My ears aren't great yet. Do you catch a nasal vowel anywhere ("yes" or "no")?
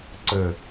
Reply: no